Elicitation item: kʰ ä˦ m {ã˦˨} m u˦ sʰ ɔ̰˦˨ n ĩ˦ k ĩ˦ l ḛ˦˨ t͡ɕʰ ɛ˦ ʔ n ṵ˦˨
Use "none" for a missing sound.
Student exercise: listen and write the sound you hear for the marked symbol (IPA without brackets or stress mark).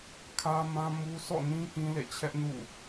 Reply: ã˦